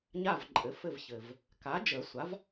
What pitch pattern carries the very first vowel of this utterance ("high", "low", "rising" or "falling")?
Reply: falling